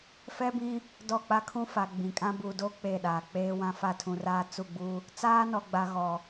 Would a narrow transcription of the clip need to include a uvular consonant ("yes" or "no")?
no